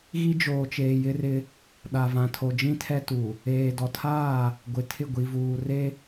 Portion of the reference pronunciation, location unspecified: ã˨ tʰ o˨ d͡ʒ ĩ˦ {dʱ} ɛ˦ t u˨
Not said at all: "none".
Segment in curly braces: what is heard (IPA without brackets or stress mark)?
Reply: tʰ